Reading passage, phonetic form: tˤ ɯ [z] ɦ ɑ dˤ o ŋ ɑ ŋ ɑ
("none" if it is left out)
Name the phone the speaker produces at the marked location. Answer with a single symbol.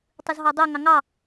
z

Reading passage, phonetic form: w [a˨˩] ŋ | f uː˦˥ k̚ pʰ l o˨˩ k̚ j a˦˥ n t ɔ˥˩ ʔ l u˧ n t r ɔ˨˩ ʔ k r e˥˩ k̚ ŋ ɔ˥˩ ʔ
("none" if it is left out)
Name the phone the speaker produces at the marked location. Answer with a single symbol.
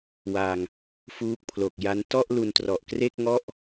a˧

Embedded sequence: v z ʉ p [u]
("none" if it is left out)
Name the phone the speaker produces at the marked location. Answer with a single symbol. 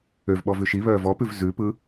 ɯ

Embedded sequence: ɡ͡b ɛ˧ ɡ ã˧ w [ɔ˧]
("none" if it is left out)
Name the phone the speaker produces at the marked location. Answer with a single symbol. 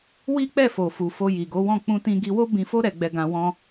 ɔ̃˧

